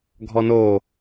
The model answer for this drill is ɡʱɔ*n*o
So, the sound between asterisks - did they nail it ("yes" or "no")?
yes